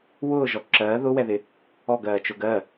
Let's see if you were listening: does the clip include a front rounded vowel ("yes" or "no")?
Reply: no